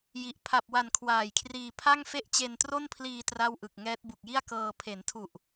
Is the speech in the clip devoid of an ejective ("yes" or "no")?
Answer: yes